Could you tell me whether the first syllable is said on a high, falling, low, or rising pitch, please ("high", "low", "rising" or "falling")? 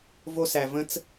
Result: high